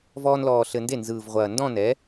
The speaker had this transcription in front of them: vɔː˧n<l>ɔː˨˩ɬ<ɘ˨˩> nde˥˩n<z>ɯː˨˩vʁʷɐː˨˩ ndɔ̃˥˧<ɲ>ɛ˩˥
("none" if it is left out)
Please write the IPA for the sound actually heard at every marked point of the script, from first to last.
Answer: l, ɘ˨˩, z, n

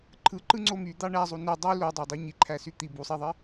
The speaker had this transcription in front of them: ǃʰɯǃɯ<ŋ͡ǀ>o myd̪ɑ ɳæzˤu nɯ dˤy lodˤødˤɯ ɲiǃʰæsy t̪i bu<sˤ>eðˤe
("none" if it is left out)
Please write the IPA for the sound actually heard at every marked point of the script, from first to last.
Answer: ŋ͡ǀ, sˤ

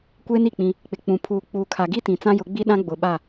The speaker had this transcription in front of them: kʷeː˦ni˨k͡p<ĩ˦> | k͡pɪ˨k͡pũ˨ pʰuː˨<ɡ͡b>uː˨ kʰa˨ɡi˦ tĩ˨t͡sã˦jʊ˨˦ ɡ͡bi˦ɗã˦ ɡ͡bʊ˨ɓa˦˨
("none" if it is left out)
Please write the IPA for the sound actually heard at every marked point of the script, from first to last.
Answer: ĩ˦, k͡p

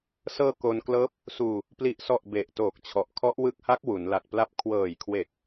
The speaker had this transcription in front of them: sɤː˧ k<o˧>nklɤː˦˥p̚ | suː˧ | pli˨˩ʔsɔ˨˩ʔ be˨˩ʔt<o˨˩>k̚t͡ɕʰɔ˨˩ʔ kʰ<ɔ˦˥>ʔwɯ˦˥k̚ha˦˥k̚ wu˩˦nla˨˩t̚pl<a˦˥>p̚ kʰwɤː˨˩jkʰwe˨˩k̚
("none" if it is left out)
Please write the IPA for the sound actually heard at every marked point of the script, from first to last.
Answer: o˧, oː˨˩, ɔ˦˥, a˦˥

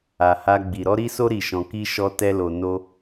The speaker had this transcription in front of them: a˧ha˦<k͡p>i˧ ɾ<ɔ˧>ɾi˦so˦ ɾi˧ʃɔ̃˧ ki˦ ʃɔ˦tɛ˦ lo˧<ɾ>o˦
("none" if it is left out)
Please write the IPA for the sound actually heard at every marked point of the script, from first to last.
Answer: ɡ͡b, ɔ˦, n

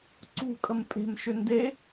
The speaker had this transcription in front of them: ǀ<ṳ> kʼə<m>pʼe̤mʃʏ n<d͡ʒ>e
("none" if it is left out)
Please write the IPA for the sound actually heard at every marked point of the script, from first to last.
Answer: ṳ, m, d

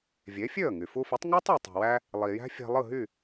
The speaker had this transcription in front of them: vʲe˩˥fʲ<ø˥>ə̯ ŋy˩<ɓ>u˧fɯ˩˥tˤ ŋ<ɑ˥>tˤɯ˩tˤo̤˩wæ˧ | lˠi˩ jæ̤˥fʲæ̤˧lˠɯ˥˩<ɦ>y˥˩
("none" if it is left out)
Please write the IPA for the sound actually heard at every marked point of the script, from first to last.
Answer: ø˥˩, f, ɑ˥, ɦ

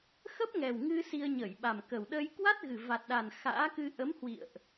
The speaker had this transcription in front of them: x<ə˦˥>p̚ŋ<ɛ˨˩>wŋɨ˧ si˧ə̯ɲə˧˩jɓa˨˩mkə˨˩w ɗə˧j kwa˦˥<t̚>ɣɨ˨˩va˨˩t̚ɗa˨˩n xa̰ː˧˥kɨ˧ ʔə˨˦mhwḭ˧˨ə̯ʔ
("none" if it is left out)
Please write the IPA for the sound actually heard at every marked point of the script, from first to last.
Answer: ə˦˥, ɛ˨˩, t̚

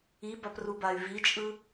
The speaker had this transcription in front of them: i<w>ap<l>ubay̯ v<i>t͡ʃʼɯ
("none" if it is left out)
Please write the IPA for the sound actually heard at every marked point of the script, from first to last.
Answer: b, r, i

